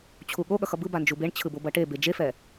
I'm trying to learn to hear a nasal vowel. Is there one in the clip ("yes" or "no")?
no